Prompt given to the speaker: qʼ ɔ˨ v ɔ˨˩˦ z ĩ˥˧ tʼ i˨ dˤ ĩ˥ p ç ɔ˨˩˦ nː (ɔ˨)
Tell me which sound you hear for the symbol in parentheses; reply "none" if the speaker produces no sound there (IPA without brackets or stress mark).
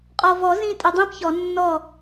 ɔ˥˩